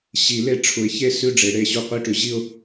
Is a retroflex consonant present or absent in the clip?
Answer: present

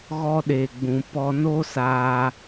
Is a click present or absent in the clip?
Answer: absent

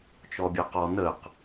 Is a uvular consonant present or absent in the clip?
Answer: present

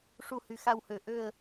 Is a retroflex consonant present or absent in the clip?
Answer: present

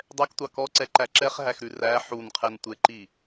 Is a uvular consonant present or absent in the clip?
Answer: present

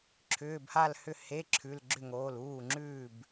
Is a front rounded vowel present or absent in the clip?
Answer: present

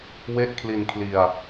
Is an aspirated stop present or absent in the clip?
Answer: present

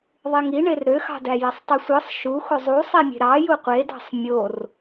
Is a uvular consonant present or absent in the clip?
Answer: present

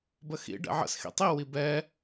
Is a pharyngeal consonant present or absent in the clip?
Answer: present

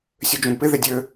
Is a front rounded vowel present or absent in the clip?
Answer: present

